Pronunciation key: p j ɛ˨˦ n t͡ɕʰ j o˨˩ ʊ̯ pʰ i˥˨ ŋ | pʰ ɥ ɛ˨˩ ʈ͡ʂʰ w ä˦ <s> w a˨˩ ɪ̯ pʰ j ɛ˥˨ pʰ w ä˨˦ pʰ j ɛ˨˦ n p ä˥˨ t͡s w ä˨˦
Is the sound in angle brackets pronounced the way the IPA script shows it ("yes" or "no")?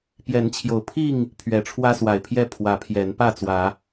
yes